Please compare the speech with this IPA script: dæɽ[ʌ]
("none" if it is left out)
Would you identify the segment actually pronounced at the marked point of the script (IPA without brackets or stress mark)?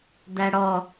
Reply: ɔ